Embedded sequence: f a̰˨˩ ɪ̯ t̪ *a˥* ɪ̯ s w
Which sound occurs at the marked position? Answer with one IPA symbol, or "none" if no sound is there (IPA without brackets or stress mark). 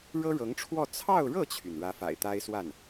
a˥